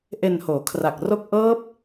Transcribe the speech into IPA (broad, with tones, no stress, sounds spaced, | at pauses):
ʔ e˧ n h oː˩˦ kʰ r a˨˩ k̚ r o˥˩ k̚ ʔ ɤː˦˥ p̚